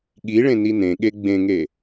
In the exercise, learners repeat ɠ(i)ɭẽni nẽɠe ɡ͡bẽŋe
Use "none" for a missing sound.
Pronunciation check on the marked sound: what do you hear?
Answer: i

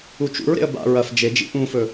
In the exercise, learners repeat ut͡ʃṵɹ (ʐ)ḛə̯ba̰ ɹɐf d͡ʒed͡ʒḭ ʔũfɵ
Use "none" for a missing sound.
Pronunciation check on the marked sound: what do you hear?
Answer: ɾ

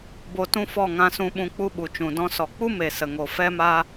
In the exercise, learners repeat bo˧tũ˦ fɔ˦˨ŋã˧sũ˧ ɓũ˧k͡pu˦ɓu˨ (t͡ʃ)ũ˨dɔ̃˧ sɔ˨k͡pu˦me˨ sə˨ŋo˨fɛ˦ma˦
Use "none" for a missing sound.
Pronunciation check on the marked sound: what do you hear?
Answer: t͡ʃ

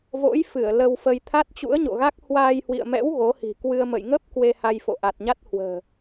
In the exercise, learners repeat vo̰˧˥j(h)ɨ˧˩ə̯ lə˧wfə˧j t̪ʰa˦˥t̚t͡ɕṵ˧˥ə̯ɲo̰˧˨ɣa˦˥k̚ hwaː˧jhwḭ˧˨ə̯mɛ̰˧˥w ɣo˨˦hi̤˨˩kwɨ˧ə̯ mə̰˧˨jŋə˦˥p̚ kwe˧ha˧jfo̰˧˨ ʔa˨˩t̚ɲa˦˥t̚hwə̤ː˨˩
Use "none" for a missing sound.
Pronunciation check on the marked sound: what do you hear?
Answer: f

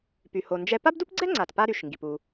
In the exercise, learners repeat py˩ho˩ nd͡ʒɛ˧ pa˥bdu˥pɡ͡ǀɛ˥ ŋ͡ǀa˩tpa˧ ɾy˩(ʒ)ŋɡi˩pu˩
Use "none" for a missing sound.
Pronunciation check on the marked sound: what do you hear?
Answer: ʃ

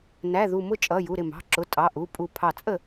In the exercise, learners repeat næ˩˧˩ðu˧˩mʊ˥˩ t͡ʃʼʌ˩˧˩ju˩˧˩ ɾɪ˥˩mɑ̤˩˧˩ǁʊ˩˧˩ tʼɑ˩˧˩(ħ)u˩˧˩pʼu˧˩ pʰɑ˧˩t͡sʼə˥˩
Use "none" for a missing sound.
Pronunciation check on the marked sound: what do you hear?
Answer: ʔ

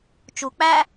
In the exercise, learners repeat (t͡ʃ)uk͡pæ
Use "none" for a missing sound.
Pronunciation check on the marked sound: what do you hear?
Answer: t͡ʃ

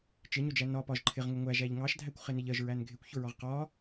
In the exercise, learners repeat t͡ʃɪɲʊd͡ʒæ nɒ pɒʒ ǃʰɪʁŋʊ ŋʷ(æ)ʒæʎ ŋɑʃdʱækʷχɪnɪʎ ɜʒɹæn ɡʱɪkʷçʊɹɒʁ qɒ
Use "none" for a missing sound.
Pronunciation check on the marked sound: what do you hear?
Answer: æ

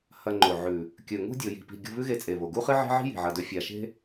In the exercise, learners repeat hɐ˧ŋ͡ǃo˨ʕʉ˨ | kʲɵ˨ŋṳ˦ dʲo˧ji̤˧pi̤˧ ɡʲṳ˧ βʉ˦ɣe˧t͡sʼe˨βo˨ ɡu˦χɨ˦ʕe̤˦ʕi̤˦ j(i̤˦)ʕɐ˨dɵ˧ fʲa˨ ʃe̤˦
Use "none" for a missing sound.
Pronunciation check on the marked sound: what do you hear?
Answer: i̤˨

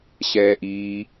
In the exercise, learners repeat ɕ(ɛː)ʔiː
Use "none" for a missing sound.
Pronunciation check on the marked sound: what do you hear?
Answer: ɛː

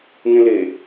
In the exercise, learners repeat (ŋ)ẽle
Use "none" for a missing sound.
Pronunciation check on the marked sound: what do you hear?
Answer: ŋ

